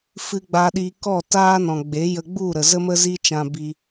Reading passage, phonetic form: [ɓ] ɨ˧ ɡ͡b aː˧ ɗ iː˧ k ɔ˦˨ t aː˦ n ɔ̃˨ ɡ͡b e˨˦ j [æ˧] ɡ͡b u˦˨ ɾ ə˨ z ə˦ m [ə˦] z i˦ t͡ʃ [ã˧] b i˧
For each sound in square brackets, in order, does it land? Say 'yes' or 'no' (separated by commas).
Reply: no, no, yes, yes